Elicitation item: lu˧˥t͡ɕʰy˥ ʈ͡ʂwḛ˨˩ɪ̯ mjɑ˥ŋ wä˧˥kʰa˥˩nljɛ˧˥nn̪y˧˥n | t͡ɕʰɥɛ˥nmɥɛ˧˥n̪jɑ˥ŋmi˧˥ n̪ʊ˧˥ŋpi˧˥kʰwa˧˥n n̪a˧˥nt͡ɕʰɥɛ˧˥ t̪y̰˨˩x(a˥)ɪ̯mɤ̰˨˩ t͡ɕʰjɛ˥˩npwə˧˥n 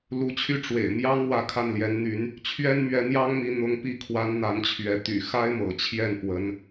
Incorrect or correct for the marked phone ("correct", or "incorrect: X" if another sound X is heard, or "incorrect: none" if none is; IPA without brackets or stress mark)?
correct